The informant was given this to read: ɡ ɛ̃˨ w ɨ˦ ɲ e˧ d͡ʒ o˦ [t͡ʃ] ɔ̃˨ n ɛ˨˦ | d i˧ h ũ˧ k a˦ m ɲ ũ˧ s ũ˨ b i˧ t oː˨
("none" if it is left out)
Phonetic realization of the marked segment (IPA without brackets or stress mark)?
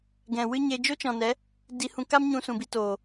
t͡ʃ